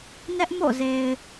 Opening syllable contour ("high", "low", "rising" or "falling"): high